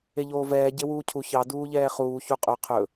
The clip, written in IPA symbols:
eʎoːvɛː ɟewuːcʰu çɑ duːʎɛːχuː çuqʼɵ qʰɵ

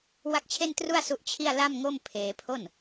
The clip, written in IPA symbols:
wa˥˩k̚t͡ɕʰe˥˩ntru˥˩a̯ su˦˥ʔt͡ɕʰi˥˩a̯ la˥˩mŋo˥˩m pʰeː˧pʰo˥˩n

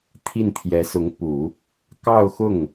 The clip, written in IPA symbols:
t̪ʰi˥˩nt̪ʰjɛ˧˥sʊ˧˥ŋpu˨˩˦ | kɑ˥˧ʊ̯xʊ˥˩ŋ

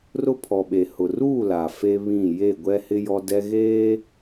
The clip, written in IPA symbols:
rʊ˦pʰɔ˨ɓe˨ hʊ˨ruː˦˨ la˨ fe˦βĩ˦˨ je˦˨ɡʷɛ˦hɪ˦ jɔ˦dɛ˦ ɣeː˦

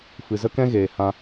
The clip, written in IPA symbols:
fɨ˨zə˦kɛ̃˦ɣeː˨ hã˧

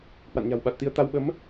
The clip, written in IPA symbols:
hwa̰˧˨nɲa̤˨˩wɓa˨˩t̚t̪i˧ə̯ t̪a˧wɓə˨˦m

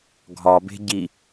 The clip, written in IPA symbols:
ɡʱɒbe̤ ɟi

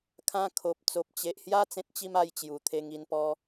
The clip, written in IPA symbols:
kʰã˧ kʰo˨p̚ t͡so˨p̚t͡ɕe˨ʔhja˥˧ t͡sẽ˦t̚t͡ɕi˦ma˧jt͡ɕju˨˩ t̪ʰe˧ŋ i˧npɔ˧

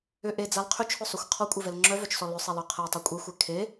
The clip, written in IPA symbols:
ʏ ʔed͡zal qʰʏt͡ʃʰʊsˤøxʷ qʰɔkʷʼevɛl ŋ͡ǁœvœt͡ʃsɔ lʏsˤelœ qʰɛtˤø kʷʼexʷɛ kʰe

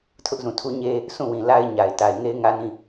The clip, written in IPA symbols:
tʰʊ˦ʔzũ˨tʰu˦ɲe˦ | sʰũ˦˨wĩ˨ la˦ɪ̯ɲa˨ɪ̯ ta˨ɪ̯ŋe˦ɪ̯ŋä˦ nĩ˦˨

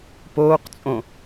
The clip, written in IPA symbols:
poːqt͡sʼõ

